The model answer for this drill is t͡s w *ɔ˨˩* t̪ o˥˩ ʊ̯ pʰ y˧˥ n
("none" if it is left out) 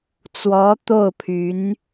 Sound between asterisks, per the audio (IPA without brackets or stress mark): ɔ˧˥